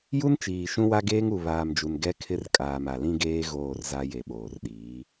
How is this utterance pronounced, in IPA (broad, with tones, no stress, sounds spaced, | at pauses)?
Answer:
j u˦ n t͡ʃ iː˨ ʃ ũ˦ w a˦ ɡ eː˦ ŋ u˨ β aː˨ m d͡ʒ u˨ n ɡ ɛ˦ kʰ ɪ˦ r kʼ aː˨ m a˨ l ĩ˦ ɡ eː˦ ɣ oː˦˨ r z a˦ j e˨ ɓ oː˨ r ɗ iː˨˦